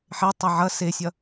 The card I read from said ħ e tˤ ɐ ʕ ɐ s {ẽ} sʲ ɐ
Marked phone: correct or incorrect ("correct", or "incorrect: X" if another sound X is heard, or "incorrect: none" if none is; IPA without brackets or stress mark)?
incorrect: e